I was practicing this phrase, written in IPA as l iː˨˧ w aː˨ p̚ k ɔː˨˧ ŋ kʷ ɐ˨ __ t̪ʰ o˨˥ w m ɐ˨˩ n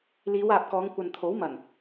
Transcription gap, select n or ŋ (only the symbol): n